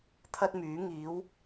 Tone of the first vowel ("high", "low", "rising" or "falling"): high